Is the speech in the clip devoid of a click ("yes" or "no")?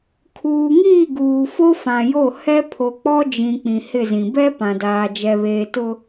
yes